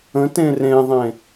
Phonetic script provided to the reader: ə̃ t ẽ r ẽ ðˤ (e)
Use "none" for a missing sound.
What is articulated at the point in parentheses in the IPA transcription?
ẽ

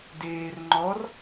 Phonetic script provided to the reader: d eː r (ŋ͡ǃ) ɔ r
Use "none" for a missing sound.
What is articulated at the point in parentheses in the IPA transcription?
ŋ͡ǃ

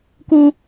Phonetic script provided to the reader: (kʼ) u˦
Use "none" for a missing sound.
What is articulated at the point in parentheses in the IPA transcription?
k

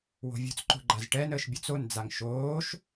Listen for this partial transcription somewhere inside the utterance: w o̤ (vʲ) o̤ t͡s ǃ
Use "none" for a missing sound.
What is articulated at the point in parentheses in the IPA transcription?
vʲ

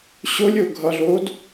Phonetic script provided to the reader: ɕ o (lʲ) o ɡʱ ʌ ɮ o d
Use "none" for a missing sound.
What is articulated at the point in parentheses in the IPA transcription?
lʲ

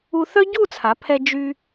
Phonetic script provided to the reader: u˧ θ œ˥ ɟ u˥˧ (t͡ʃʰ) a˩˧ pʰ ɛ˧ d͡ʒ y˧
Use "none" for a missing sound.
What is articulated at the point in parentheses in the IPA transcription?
t͡sʰ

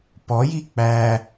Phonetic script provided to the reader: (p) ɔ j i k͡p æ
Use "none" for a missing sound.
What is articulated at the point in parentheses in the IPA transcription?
p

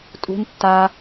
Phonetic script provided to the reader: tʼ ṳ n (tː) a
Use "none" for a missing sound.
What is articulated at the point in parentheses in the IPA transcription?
tː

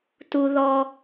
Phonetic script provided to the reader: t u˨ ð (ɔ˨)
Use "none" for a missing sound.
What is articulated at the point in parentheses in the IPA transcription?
ɔ˨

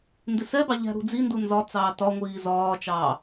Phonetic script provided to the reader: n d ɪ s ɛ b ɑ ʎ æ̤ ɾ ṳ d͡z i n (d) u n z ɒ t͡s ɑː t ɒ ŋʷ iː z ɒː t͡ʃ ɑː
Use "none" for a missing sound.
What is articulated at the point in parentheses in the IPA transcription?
d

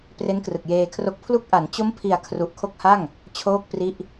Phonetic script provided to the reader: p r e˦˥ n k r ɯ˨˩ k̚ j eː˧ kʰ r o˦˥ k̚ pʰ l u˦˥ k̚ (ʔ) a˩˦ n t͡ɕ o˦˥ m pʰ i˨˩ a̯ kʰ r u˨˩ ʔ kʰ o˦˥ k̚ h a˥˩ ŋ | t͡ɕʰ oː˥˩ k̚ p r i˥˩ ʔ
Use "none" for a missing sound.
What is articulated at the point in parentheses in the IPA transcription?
ʔ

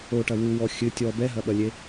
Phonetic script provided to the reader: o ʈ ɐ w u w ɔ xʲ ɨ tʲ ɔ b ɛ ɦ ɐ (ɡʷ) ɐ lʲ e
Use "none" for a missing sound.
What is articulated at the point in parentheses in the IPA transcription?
ɓ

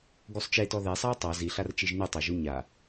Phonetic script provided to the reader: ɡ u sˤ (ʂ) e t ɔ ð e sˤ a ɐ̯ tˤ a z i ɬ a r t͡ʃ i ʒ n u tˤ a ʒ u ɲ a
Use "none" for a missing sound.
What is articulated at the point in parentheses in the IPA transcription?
t͡ʃ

